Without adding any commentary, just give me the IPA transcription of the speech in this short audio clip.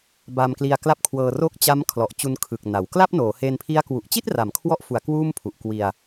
b a˧ m k l i˧ a̯ k l a˥˩ p̚ kʰ w ɤː˧ r o˥˩ k̚ t͡ɕ a˦˥ m kʰ l ɔ˨˩ ʔ t͡ɕ u˧ n kʰ ɯ˨˩ k̚ n a˩˦ w k l a˥˩ p̚ n oː˩˦ h e˧ n pʰ i˦˥ a̯ k w u˨˩ ʔ t͡ɕ i˥˩ t̚ r a˩˦ m kʰ w ɔ˦˥ ʔ f u˩˦ a̯ k w uː˥˩ m pʰ u˨˩ ʔ k w i˧ a̯

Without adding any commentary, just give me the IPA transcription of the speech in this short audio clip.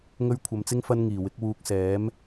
ŋ ɵ˥ ɥ kʷʰ ɐ˧ m t͡s ɪ˥ ŋ f ɐ˥ n ŋ iː˨˩ w ɪ˨˥ k̚ w uː˧ k̚ s ɛː˨˥ m

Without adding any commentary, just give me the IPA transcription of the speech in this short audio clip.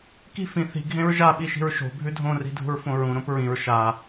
k i̤ f ĩ θ i̤ ɡʱ ẽ ɹ ʒ a ɓ i ʃ i̤ ɹ ʃ o̤ bʱ ʉ dʱ õ r i̤ dʱ ṳ ɹ f õ ɹ ũ ɾ õ p ɹ ĩ ɹ ʃ a

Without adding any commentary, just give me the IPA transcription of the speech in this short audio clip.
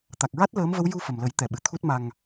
t̪ a˨˩ k̚ ɹ a˦˥ t̚ l əː˧˥ m v ə˧˥ w j u˧ f ə˨˩ m l ə˨˩˦ j t̪ ɛ˨˩ ɓ ɨ˨˩ t̪ʰ u˦˥ t̚ m a˧ ŋ

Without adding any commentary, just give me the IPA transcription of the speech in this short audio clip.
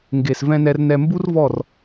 ŋ ɡ e˨ s v ɛ̃˧ n ɛ˧ r n ɛ˧ m b u˦ r v ɔ˦˨ r

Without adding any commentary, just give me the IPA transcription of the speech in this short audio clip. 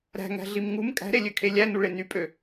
ɾ æ̤ ŋ æ̤ ɮ i m ŋ u m kʼ æ̤ ɾ e lʲ ø kʰ e lʲ æ n u ɭ e n y pʼ ø

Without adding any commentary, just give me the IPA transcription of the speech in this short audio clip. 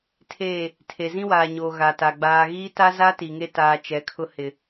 tʰ eː˦˨ | tʰ e˨ z ĩ˦ w aː˨ ɲ oː˨ ɣ a˨ t a˨ ɡ͡b aː˨ ɣ iː˦ t a˦ z a˦ t i˨ ŋ e˦ t aː˨ t͡ʃ ɛ˨˦ kʰ ʊ˦ h ɪ˨

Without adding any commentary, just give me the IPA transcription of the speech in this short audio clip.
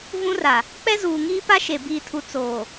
v ũ˦ r a˨ | k͡p ɛ˦ z uː˨ ŋ iː˦ p a˦ ʃ e˨ b iː˨ tʰ u˨ t͡s oː˨

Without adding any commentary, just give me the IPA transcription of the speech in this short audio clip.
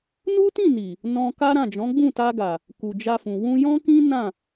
n u˦ t ĩ˦˨ n i˨ | n ɔ̃˧ k a˦ ɾ ã˦˨ d͡ʒ ɔ̃˨˦ ɡ͡b ũ˦˨ t a˧ ɡ a˨ | k u˨ d͡ʒ a˧ f ũ˨ w ũ˧ j ɔ̃˦ k ĩ˦ n ã˦˨

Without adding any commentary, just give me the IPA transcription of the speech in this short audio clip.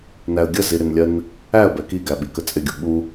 n æ ə̯ ɡʲ ə z i ɾ ɪ n lʲ ɜ n | æ ə̯ b ɛ k i ɡ æ ɓ i k ə t͡sʼ ɪ ɡʲ u ɓ u

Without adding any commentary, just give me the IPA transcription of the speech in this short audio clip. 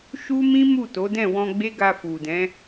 ʃ u˦ m ĩ˦ m u˦˨ t o˨˦ d ɛ̃˦˨ w ɔ̃˧ ɡ͡b e˦ ɡ a˧ f u˨ d ɛ̃˨˦

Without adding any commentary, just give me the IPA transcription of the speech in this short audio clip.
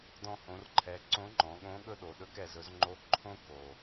d ɔ̃˧ h õ˩˧ r ǃʰ ɛ˩˧ ǀ õ˧˥ ŋ͡ǃ ɔ̃˩˧ ɠ õ˧˥ ɠ ɵ˥ ɗ o˩˧ ɗ ɵ˧˥ k ɛ˩˧ z ɵ˧ z ŋ͡ǃ o˧˥ ǃʰ õ˥ k o˩

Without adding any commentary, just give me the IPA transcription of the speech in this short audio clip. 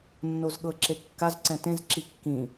nː o z ɠ ɤ ǁ e kː a z ǀ ɛ̃ t ẽ z ǁ i kː ĩ

